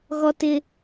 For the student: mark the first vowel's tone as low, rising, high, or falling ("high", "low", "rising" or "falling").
high